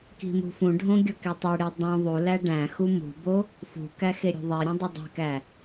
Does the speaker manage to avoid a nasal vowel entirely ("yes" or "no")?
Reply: no